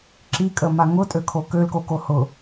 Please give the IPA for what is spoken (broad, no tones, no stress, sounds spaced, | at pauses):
ǁ i kʼ ə m a ŋ ʊ tʼ ø kʰ o k ø l k o k o h ʊ